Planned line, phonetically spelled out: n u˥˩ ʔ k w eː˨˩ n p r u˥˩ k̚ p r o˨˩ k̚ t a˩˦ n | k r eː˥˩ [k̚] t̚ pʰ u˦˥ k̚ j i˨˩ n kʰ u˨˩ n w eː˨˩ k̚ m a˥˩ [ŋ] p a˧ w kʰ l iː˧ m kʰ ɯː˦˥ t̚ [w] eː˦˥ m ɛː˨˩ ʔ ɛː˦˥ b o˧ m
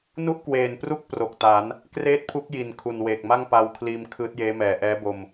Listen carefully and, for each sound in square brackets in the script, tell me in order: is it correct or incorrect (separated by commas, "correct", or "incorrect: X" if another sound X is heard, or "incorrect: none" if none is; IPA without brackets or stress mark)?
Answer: incorrect: none, correct, incorrect: j